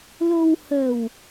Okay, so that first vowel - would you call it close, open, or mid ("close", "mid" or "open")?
mid